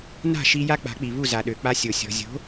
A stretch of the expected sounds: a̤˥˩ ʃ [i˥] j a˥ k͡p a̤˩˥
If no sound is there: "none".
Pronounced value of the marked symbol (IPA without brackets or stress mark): i˧